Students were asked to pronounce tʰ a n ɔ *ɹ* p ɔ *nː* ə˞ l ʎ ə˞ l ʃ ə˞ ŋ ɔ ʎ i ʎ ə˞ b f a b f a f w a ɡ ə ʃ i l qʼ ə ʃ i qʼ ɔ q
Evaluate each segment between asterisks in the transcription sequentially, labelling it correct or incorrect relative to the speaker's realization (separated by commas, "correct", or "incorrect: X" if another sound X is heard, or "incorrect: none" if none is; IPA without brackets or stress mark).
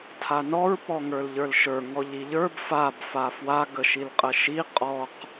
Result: correct, incorrect: ŋ